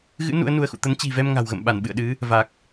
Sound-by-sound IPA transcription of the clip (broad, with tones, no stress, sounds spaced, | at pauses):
ɣ ɨ̰˧˥ n ṵ˧˥ ə̯ n u˧ ə̯ x ṵ˧˨ t̪ ə˨˦ n t͡ɕ i̤˨˩ v ɛ˧ m ŋ a̤˨˩ w ɣ ə̰˧˨ m ɓ a˧˩ n ɓ ɨ̰˧˨ ə̯ ɗ ɨ˨˦ | v a˨˩ k̚